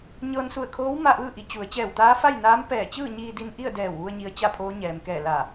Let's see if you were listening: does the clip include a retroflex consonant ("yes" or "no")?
no